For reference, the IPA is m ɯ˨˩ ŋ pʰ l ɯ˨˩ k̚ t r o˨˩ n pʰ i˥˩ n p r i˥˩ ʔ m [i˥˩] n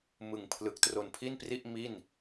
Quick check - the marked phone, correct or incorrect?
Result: correct